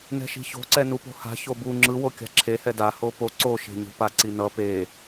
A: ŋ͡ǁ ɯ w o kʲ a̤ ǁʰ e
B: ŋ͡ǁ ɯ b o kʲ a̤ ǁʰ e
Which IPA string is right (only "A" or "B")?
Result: A